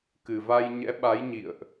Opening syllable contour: low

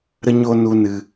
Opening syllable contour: high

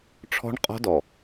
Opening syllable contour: high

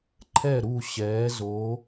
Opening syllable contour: falling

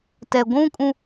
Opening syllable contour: low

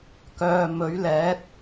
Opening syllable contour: low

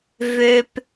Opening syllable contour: high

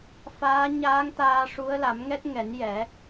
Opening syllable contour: rising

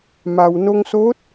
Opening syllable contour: low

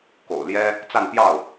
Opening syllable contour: low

